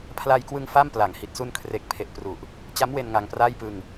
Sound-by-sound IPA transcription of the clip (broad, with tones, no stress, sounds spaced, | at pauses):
pʰ l a˧ j k w ɯ˧ ŋ f a˥˩ m p l a˩˦ ŋ h i˨˩ t̚ s u˧ n kʰ r e˨˩ k̚ pʰ e˨˩ ʔ p r u˨˩ ʔ | t͡ɕ a˦˥ m w e˧ n ŋ a˧ ŋ p r aː˥˩ j p ɯ˧ ŋ